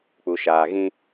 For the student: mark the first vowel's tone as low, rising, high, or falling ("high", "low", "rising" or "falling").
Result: low